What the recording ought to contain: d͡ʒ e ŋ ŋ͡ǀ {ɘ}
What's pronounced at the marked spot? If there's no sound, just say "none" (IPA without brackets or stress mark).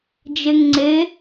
e